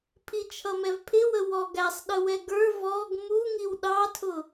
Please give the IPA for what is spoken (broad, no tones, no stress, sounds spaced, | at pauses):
pʰ i t͡ʃʰ ʌ m ɛ v pʰ ɪ w ə w ɔ ɡ æ sˤ ɗ ə w ɛ ɡ ə˞ v ɔ ɡ m u ŋ i w ɗ ɑ tʰ ʊ